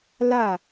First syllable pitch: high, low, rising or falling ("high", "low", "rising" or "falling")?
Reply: falling